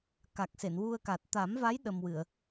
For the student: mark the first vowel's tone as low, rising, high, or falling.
low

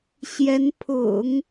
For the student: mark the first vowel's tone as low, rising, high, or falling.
rising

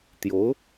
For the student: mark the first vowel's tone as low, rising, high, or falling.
rising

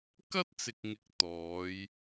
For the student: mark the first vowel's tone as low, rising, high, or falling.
high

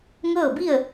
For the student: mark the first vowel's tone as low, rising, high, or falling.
falling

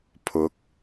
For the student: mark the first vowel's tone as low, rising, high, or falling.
rising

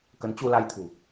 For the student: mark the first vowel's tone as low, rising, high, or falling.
rising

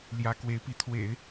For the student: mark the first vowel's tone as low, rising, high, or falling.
rising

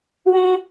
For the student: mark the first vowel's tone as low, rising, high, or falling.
high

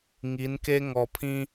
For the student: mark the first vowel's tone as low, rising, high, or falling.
rising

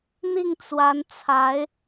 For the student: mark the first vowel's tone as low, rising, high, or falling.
falling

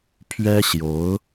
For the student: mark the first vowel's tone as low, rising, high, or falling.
high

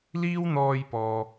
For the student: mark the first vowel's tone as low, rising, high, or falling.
high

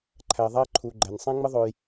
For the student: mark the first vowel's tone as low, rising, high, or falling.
low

